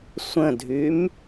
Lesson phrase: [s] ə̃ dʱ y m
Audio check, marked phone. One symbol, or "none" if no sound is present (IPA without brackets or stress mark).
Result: sʷ